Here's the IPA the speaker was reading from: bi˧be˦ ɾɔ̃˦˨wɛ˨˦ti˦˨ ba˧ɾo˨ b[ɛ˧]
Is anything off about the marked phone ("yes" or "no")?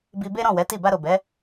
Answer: yes